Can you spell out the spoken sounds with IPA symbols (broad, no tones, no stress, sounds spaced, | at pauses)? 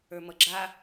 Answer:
ə˞ m ʌ ɡ͡ǁ a